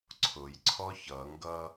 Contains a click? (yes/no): yes